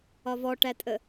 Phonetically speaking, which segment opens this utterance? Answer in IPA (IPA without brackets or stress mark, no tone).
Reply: ɒ